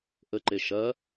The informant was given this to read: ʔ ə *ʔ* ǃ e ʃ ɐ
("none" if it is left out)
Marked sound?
none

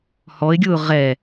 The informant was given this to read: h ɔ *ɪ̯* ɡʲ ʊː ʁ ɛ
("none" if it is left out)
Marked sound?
ɪ̯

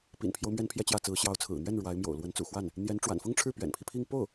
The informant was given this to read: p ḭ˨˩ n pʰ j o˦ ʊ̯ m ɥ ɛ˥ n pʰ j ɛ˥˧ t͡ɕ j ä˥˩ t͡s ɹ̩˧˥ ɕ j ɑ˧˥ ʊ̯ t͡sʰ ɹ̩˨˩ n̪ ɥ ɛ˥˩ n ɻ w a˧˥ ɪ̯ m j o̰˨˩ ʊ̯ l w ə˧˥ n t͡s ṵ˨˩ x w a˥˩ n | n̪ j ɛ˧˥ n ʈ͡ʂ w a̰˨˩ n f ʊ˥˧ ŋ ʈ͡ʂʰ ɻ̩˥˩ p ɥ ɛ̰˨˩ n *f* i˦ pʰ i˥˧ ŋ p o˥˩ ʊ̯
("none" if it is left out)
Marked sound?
pʰ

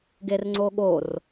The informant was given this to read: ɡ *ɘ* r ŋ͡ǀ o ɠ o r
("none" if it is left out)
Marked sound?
e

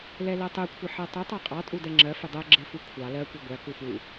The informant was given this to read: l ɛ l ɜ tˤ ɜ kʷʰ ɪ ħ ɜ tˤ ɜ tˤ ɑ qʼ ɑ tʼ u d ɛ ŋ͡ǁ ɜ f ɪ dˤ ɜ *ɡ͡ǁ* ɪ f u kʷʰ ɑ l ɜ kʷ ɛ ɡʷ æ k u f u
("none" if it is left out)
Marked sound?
ɡ͡ǁ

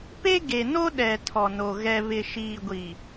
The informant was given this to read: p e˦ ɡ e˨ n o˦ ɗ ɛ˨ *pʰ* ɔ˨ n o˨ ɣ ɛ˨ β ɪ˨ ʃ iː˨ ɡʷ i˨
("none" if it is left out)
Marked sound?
tʰ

